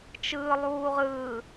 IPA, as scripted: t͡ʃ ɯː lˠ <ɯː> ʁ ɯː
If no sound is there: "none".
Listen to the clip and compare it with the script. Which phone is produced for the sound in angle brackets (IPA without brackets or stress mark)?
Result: uː